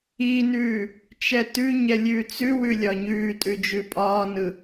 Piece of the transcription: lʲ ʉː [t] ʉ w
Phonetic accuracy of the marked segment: incorrect: t͡s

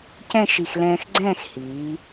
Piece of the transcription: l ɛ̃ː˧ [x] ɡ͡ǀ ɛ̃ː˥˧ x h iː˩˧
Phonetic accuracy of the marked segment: correct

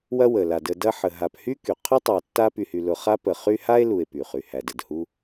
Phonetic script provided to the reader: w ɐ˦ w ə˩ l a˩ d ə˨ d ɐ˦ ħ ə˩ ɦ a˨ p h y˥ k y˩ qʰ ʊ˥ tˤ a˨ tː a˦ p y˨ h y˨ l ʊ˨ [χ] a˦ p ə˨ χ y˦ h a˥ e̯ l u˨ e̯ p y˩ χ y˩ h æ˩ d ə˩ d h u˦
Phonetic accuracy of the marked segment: correct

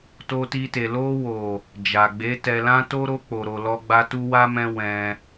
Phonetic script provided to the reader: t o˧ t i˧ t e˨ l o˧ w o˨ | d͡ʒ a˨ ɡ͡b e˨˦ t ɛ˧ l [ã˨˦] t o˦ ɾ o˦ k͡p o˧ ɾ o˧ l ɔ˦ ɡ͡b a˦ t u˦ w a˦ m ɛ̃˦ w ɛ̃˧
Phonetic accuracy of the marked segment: incorrect: ã˦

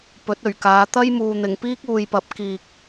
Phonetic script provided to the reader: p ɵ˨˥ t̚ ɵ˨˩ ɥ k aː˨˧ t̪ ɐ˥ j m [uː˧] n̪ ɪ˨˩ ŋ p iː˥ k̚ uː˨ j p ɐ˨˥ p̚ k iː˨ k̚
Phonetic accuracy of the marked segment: incorrect: uː˨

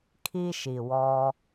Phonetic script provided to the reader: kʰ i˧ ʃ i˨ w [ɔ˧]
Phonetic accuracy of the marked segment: correct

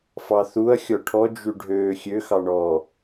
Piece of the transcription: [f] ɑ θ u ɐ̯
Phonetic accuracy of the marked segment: correct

